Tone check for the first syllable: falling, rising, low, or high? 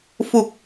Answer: low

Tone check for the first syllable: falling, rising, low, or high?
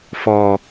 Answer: low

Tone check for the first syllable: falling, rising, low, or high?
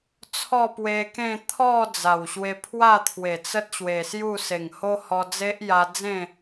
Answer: falling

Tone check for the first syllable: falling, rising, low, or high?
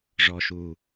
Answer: low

